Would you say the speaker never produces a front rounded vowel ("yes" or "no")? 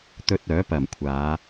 no